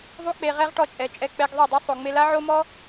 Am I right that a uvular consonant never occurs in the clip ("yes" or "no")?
no